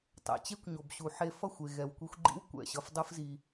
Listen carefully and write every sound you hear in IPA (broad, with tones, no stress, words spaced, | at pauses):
tˤɛ̰˨t͡ɕe˦kʷɲo˨b ɕu˨ħe˧ fʌ˦˨xʷe˨ ɣɛ˨wkʷi˧xʷɡ͡ǃḭ˦w kʷɛ̰˦˨ɕʌ˧fdˤɯ˦fzi˧